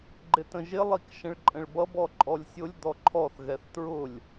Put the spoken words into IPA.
ɡ͡ǃɪtə̃ʒɪ lˠikʃə̃ɭǃʼə̃ɭbʌb ɔǃʼɔlʲsʲʊlʲ d̪ɔǃʰɔθ ɣɛθtɹʊlʲ

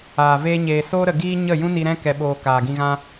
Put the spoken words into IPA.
aː˨ veː˧ɲeː˨ soː˧ɾə˨ɡiː˧ ɲə˦˨jũ˦ni˧ ɾɛ̃˦ kɛ˨ɓoː˨ kaː˨ɡĩ˧ɣã˦

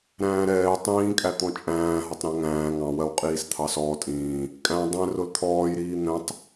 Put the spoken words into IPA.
ɾæ̃ːɾɛː tˤĩːkʼæt̪ɔ̃ t͡ʃʼæ̃ː ɦɒtˤɾæ̃ŋæ̃ː ŋɑ̃wɜw qʼiːst̪ʰɑsɔːtʼĩː | kʼæ̃ dˤɛ̃ rʊlt̪ʰɔːjɾiː n̪ɛ̃tˤ

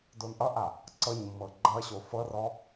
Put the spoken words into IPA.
donʔʌʔa | ǀɤɲmːɤ ɡ͡ǃʌɕo fɤrɔ

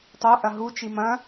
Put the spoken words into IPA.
tˤo ʔɐɦu t͡ʃimɐ̃

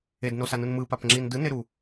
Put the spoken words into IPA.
ednosanɯn mɯpapŋ͡ǁin dɯneɾu

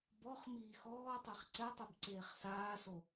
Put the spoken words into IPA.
bɔχmiː xɔːtˤeχ ǀɛtˤɛb ǀeːχsaːso

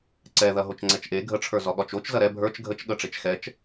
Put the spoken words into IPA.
ǀɛðɐɦot͡ʃ ŋ͡ǀɛt͡ʃʔe ɡʱəʈ͡ʂʰə˞ zɒɠɒt͡ʃot͡ʃ zɐɾɛ bʱə˞t͡ʃ ɡʱət͡ʃ ɠəʈ͡ʂet͡ʃ xɛt͡ʃ

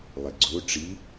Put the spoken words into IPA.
lˠeɡ͡ǀo ʈ͡ʂi

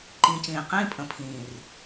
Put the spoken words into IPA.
ǃĩː˨cĩː˨qĩː˦pʼə̃˨ pʰĩː˨r

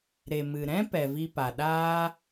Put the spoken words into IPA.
ɾe˨mɨ˨ɾɛ̃˦ pɛ˨vi˧pa˨ ɗaː˦

